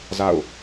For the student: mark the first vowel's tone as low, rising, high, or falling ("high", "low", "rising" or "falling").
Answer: falling